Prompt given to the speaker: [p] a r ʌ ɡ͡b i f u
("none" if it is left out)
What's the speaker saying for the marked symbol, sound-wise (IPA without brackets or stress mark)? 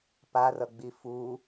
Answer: p